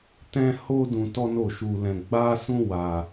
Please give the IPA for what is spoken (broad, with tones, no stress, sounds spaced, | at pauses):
t ɛ̃˦ h o˦ d ũ˧ t ɔ˦ n o˦˨ ʃ u˧ l ɛ̃˧ ɡ͡b a˦ s ũ˦ w a˧